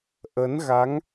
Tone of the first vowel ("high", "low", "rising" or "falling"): rising